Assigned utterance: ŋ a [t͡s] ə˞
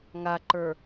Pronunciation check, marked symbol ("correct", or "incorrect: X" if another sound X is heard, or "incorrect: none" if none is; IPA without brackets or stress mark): incorrect: ǃ